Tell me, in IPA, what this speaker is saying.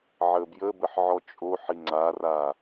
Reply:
ʕ əː b j ə b ə ħ ʕ ɔ t͡ʃʼ o ħ i ŋ͡ǀ a r a

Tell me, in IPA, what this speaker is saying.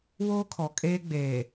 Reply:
w oː˦ kʰ ɔ˨ kʼ eː˦ ɡ͡b eː˨

